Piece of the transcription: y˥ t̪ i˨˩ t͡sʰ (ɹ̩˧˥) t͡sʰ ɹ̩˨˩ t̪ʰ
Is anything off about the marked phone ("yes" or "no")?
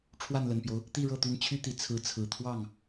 no